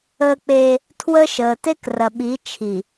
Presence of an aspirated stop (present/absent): present